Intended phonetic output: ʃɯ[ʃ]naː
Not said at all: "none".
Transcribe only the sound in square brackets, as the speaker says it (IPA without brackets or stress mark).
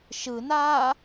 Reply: none